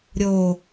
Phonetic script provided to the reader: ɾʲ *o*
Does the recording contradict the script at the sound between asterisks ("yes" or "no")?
no